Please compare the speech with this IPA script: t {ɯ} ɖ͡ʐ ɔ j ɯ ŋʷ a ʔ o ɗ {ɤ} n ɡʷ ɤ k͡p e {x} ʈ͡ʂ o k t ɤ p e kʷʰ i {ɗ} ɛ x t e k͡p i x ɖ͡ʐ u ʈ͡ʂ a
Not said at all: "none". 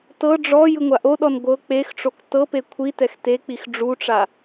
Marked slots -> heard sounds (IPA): ɤ, ɔ, x, t

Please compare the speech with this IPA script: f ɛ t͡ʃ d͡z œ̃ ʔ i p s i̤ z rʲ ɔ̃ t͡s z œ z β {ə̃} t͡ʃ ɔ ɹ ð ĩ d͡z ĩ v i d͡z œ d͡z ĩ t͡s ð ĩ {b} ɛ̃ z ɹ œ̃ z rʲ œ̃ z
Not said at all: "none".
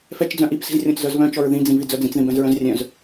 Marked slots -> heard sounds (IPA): œ̃, b

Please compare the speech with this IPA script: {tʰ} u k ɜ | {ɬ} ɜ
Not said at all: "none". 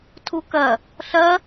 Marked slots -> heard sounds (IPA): tʰ, ɬ

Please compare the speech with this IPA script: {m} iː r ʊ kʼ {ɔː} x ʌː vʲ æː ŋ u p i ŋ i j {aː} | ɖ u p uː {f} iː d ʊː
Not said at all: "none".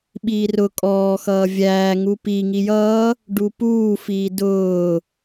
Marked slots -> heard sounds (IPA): ɓ, ɔː, ʌː, f

